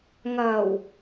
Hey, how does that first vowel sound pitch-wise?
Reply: low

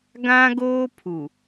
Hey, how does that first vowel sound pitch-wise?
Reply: high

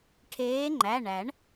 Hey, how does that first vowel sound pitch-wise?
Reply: rising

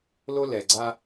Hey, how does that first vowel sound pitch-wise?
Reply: high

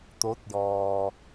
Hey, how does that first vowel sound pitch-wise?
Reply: rising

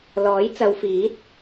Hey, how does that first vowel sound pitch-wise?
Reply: rising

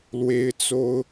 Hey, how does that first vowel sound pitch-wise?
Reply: high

